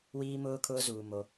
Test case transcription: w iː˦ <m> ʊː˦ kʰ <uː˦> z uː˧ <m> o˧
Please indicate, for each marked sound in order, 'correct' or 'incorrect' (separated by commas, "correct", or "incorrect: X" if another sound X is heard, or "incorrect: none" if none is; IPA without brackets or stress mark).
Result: correct, incorrect: ʊː˦, correct